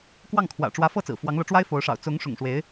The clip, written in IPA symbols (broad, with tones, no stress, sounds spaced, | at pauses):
k w ɑ˥˩ ŋ kʰ w ä̰˨˩ ʈ͡ʂ w ä˧˥ f ɤ˥˩ t͡s ɹ̩˨˩ f w ɑ˧˥ ŋ l ɤ˧˥ ʈ͡ʂ w a˥ ɪ̯ f o˧˥ ʊ̯ ʂ ɑ̰˨˩ ʊ̯ t͡s ʊ˧˥ ŋ ʂ ʊ̰˨˩ ŋ ʂ w e˧˥ ɪ̯